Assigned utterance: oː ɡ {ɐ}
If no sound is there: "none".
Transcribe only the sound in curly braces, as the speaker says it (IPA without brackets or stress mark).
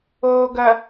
ɐ